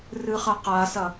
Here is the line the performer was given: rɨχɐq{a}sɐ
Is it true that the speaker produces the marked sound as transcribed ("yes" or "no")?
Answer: yes